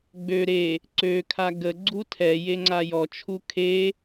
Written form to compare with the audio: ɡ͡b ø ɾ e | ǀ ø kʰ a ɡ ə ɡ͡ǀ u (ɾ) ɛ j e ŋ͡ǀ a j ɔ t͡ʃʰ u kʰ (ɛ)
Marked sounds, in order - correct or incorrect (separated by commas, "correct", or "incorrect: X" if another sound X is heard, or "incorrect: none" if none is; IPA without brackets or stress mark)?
incorrect: tʰ, incorrect: e